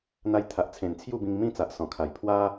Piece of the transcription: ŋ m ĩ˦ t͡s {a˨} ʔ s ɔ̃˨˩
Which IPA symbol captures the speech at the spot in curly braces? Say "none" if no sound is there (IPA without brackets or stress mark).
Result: a˨